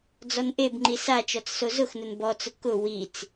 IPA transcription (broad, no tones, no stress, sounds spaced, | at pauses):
d͡z ɔ n ʔ e b ŋ͡ǃ i s a t͡ʃ ɔ t͡s s o z ʊ x n ʊ n b ɔ t͡s ʊ k ʊ w i t͡s